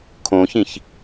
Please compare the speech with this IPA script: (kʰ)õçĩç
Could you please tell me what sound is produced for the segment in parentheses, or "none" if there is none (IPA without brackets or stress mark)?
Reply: kʰ